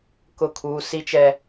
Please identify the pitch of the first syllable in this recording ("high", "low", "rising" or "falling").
falling